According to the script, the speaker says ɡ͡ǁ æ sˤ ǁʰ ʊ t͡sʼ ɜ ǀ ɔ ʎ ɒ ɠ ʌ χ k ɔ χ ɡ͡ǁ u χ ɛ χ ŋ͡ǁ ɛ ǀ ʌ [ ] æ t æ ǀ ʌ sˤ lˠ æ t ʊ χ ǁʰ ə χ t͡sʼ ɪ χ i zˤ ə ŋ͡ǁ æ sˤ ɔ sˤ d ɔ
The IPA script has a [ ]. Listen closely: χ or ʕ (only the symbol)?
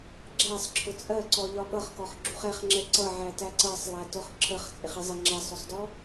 ʕ